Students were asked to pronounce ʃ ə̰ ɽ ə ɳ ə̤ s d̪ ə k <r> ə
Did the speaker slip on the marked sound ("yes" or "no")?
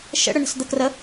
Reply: no